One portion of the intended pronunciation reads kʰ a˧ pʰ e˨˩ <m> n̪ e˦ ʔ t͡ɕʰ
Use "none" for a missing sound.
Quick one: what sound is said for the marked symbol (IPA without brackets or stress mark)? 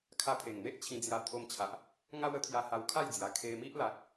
ŋ